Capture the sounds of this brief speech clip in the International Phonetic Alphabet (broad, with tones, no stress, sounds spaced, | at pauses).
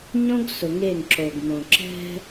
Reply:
ɲ õ˦ ɡ s ʊ˨ ŋ e˦˨ ŋ ǁ o˨ ɡ m õ˨ ǁ ɛ̤˦